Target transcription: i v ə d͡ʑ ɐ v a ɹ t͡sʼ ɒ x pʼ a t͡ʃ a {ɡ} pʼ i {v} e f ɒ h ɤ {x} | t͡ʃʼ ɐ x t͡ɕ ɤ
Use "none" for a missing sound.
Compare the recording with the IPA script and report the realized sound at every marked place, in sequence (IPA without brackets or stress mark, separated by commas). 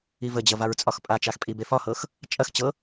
x, b, x